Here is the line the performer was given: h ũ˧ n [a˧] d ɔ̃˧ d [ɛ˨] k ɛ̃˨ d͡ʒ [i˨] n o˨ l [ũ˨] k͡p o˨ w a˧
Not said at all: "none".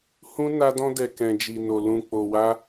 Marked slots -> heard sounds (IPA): a˧, ɛ˨, i˨, ũ˨

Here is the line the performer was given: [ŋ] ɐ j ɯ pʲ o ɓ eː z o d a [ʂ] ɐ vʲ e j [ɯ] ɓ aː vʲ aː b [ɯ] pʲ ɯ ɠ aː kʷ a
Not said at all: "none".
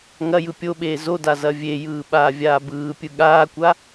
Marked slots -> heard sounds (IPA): ŋ, z, ɯː, ɯː

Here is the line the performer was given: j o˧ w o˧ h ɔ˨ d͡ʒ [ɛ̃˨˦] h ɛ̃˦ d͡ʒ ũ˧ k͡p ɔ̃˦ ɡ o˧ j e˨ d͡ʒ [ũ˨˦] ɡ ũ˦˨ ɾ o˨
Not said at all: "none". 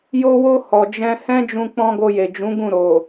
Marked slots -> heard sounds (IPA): ɛ̃˧, ũ˨˦

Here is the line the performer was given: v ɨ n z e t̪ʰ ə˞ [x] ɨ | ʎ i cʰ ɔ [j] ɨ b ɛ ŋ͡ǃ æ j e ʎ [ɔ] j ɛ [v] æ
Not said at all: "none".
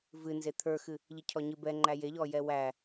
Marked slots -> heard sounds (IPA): x, ɲ, ɔ, w

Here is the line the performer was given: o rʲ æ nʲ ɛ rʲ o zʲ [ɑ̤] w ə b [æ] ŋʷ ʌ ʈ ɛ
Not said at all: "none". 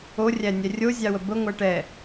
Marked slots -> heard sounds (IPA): ɑ, ə

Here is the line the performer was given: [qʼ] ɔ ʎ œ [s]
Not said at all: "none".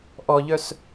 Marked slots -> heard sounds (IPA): ʔ, s

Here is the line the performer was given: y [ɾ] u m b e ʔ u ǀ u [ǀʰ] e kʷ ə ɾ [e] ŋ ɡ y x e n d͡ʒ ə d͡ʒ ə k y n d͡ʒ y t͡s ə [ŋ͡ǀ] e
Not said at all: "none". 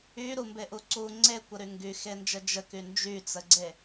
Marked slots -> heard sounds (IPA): ɾ, ŋ͡ǀ, y, ɡ͡ǀ

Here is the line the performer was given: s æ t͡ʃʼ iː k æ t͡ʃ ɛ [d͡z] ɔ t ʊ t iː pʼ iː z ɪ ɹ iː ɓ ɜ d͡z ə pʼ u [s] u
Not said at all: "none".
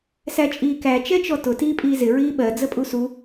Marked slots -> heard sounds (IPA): t͡ʃ, s

